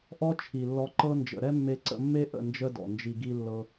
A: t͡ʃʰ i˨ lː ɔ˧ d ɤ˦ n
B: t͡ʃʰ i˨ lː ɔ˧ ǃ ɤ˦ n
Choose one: B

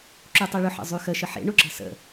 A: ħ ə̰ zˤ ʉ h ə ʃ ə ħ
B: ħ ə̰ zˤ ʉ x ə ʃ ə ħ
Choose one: B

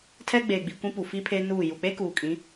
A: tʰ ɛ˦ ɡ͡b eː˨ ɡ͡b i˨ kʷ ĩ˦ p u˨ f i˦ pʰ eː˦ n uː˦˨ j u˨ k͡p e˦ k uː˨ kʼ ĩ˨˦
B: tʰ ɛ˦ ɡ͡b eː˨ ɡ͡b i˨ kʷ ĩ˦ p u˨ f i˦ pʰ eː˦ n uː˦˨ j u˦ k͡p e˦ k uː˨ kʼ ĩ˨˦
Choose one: A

